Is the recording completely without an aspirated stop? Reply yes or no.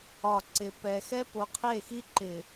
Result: no